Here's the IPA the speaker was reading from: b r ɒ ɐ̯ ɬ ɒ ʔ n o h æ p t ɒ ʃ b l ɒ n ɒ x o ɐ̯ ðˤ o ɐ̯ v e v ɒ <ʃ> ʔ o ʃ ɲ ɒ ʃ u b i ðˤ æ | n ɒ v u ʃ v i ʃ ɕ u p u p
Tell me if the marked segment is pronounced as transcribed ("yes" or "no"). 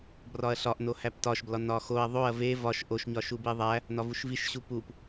yes